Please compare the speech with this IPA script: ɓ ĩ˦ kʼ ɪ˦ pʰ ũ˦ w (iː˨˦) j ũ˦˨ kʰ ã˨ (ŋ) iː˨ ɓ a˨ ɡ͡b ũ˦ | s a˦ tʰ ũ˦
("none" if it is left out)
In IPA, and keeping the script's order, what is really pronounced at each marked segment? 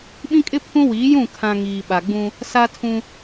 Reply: iː˨˦, ŋ

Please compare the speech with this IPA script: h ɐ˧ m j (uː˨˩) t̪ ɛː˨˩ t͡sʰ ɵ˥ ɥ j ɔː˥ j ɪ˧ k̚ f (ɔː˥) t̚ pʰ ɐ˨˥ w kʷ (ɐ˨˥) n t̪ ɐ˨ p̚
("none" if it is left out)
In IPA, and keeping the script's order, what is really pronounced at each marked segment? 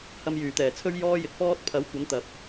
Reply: yː˨˩, ɔː˥, ɐ˨˥

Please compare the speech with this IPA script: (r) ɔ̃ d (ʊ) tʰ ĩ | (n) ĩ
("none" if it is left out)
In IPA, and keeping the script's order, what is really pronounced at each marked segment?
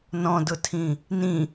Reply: n, ʊ, n

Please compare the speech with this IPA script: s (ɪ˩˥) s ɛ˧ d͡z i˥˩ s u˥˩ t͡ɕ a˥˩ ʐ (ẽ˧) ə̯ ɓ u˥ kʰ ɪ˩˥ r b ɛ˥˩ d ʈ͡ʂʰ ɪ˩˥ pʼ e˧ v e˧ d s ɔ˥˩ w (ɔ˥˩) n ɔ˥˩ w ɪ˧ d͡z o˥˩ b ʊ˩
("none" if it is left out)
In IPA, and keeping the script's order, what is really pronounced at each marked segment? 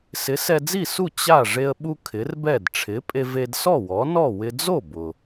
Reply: ɪ˩˥, e˧, ɔ˩˥

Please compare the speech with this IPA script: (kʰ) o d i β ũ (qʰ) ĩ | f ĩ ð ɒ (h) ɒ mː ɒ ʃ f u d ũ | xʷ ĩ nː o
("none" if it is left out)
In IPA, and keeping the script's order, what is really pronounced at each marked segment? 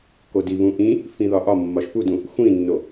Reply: k, ʔ, ʔ

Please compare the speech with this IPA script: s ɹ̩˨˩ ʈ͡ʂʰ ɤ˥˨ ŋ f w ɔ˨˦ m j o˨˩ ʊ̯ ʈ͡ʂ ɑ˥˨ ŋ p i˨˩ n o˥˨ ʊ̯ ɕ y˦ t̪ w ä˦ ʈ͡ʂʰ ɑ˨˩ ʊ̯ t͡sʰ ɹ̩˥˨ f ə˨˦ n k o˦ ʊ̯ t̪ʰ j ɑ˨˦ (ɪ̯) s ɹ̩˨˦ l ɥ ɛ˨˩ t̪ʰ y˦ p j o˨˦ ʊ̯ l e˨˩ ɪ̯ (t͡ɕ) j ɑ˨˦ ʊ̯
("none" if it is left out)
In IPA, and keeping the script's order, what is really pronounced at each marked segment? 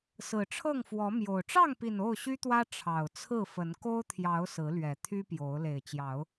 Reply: ʊ̯, t͡ɕ

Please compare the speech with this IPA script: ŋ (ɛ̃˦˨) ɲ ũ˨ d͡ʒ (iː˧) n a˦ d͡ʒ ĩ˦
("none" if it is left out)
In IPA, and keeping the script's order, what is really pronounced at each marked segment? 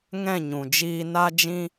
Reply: ɛ̃˦˨, iː˧

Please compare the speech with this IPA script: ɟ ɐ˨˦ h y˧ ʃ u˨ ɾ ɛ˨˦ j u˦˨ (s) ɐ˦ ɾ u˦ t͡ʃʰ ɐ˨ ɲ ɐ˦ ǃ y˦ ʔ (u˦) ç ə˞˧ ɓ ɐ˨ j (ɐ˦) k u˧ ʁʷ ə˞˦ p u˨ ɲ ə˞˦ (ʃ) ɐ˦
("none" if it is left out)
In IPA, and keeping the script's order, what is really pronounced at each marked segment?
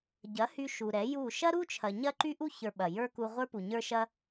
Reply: ʃ, u˦, ə˞˦, ʃ

